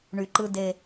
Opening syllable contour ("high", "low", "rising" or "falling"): low